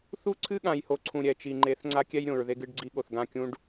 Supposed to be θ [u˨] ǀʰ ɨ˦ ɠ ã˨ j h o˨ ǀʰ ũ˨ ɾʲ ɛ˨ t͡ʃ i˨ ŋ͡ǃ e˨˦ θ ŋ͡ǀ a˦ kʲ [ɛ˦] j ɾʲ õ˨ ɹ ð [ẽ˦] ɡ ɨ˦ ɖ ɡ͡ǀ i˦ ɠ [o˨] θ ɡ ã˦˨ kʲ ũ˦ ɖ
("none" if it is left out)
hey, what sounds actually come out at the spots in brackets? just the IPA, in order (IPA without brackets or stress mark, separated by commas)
u˦, ɛ˦, e˦, o˨